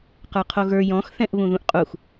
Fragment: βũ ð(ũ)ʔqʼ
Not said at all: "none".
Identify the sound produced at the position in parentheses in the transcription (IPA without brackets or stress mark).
ũ